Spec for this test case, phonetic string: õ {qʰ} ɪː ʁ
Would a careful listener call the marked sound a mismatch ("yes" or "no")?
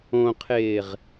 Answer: no